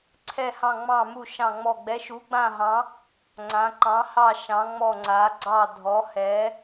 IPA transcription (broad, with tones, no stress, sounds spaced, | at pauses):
ǀʰ ɛ˥˧ h ɑ̃˥˧ ŋ͡m ɑ̃˥˧ m u˥˧ ʃ ɑ̃˥˧ ŋ͡m ɔ˥˧ ɡ͡b ɛ˧˥ ʃ u˧˥ ɡ͡b ã˥˧ ɦ ɑ̃˧˥ | ŋ͡ǀ ã˧˥ ǃ ɑ̃˧˥ h ɑ˥˧ ʃ ɑ̃˧˥ ŋ͡m ɔ˥˧ ŋ͡ǀ a˧˥ ɡ͡ǀ ɑ˥˧ dʱ ɔ˧˥ h ɛ˧˥